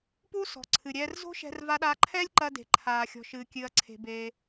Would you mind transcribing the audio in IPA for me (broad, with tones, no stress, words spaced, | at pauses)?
pu˥sɔ̤˩ǀʰɨ˩ɾʲɛː˧r zo̤˥ʃɛ̤˧r va˧ɗaː˧ ǃʰɛː˥lʲǃɐ˧ de̤˩ǃʰaː˩xʲɔ̤˩ ʃɨː˩kʲɨ˩ɐ̯ǀʰe̤˩beː˩